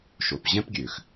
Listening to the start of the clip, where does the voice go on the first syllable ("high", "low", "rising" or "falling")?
low